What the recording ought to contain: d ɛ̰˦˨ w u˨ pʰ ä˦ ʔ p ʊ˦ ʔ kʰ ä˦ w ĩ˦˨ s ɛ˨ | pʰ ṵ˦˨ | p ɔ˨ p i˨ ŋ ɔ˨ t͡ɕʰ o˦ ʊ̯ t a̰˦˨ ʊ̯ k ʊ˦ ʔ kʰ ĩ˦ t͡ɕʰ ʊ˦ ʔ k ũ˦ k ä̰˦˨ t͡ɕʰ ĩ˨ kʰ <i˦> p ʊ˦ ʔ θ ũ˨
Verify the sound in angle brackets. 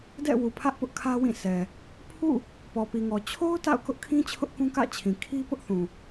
correct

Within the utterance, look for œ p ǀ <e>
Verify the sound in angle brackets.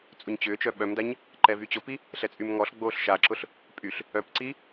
incorrect: i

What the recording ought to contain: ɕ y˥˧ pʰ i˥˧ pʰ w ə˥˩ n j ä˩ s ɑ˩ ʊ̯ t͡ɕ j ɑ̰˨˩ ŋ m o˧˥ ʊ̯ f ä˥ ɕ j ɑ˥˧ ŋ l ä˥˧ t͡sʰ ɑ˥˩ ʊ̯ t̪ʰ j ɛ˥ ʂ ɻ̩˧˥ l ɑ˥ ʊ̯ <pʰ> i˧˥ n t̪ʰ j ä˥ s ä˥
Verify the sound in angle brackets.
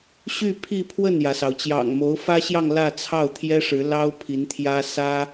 correct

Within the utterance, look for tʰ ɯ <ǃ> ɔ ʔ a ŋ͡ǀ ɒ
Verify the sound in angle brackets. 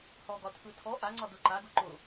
incorrect: tʰ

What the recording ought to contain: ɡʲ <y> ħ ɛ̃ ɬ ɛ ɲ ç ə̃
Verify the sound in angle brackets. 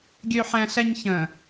incorrect: ø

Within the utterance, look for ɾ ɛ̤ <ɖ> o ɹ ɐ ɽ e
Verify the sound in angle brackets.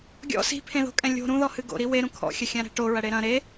incorrect: ʈ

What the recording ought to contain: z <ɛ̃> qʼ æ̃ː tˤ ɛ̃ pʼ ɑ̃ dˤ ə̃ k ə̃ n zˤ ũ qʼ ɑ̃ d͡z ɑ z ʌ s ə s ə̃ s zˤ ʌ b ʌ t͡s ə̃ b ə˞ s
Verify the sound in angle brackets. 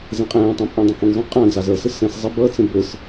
correct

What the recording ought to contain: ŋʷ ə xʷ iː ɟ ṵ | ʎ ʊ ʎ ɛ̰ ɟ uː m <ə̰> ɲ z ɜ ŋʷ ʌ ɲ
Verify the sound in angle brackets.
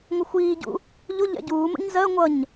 correct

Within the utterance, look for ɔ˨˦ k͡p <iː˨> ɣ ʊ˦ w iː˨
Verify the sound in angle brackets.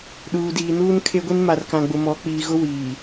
correct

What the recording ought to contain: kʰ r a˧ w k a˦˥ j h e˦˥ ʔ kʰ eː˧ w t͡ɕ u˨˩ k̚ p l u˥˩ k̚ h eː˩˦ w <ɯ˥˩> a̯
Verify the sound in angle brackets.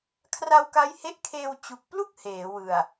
incorrect: ɯ˨˩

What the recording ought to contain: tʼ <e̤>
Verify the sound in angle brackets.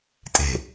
correct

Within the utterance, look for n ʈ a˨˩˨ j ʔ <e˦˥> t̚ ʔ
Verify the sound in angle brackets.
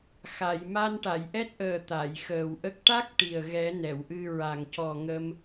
incorrect: ɛ˦˥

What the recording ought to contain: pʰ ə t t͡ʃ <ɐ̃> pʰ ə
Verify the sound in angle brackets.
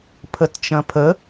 correct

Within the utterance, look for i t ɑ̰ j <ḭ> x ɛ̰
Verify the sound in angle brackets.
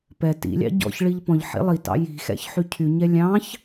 incorrect: i̤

